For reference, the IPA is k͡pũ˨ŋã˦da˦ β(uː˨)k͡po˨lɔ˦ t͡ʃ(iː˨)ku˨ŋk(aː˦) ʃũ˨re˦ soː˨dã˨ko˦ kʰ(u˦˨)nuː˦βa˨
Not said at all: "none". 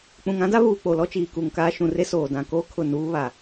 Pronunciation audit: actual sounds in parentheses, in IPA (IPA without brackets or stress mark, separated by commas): uː˨, iː˨, aː˦, ʊ˦˨